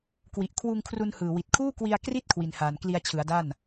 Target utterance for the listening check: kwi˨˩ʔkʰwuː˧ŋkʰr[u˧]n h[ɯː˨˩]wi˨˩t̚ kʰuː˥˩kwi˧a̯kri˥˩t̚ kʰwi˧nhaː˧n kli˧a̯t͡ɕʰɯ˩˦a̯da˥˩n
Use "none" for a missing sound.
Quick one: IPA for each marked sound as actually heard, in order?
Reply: u˧, ɯː˨˩

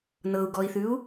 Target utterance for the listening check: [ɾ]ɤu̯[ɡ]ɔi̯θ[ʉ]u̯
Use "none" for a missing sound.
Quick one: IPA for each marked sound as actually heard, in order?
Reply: n, ɡ, ʉ

